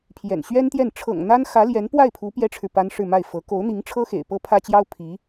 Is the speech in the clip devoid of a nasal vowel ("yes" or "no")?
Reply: yes